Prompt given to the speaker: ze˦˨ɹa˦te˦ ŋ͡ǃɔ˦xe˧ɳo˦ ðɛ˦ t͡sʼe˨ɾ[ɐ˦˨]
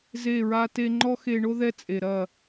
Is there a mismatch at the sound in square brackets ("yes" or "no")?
no